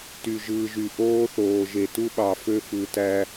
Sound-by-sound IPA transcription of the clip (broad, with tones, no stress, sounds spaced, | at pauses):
t y˨ ʒ ɯː˨ ʒ y˨ ʔ oː˦ θ oː˨ ʒ e˨ t u˦ ɓ ɑ˨ f ø˦ f ɯ˨ t æ˦